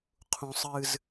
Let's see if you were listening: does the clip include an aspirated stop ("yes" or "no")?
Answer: yes